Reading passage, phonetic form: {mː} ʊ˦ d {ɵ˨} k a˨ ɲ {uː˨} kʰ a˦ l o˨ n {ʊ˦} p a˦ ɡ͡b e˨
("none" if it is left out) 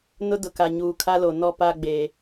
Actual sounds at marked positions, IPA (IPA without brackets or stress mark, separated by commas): n, ʊ˨, uː˨, ɔ˦